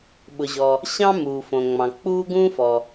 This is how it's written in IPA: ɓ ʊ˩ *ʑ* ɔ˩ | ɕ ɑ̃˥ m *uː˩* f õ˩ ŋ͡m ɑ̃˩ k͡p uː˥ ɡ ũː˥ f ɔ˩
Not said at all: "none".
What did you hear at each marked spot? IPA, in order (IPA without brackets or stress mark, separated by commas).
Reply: ʑ, uː˩